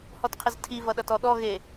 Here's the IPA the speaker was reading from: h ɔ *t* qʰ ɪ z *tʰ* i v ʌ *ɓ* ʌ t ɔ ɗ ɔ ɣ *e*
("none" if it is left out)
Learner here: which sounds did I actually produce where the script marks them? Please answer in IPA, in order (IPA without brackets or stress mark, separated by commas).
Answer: t, tʰ, ɗ, e